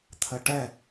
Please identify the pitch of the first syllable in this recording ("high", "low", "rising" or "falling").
low